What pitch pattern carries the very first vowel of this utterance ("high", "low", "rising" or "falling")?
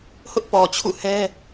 high